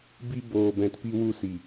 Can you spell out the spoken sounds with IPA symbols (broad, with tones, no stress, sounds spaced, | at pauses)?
b i˧ b oː˨ b ɛ̃˨ t p i˧ w u˧ s i˨